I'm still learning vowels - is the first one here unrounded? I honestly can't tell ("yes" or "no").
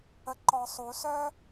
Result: yes